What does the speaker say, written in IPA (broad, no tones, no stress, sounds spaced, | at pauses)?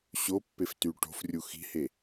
ɕ o pː e f t y ʈ o̤ f rʲ u x i̤ h e